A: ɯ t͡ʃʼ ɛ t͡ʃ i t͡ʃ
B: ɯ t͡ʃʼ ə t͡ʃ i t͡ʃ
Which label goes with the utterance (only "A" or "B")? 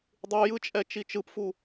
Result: A